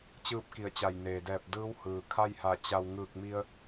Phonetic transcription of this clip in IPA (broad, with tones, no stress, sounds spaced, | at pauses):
t͡ɕ ɯː˥˨ p̚ k i˧˩ ə̯ t͡ɕ a˧˩ j n eː˩ d ɛː˧˩ p̚ d ɯː˧˥ w h ɯː˩ kʰ a˥˨ j h a˧˩ t͡ɕ a˧ w ŋ ɯː˧˩ k̚ m i˧ ə̯